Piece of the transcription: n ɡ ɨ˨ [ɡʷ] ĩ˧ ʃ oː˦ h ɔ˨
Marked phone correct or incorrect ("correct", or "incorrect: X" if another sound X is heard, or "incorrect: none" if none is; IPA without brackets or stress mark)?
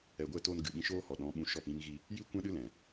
incorrect: ɓ